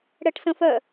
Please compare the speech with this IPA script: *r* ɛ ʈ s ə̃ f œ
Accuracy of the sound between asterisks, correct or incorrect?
incorrect